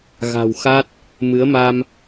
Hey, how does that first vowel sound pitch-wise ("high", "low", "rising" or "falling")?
low